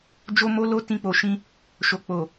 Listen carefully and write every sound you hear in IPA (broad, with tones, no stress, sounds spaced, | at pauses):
d͡ʒ o˦ m o˦ l o˦ t ĩ˧ k͡p o˨ ʃ ĩ˧ | ʃ o˨ k͡p o˨